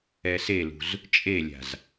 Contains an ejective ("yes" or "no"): yes